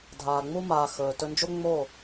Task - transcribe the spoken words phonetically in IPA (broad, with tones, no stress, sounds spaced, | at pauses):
dʱ aː˨ ŋ͡m u˧ m aː˨ x ɵː˨ t ɵ˧ n d͡ʒ o˦ ŋ͡m o˦˨